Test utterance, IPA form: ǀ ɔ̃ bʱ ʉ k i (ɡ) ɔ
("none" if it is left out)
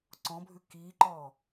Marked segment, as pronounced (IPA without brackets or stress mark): ǃ